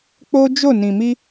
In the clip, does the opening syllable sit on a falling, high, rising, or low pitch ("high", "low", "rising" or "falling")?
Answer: high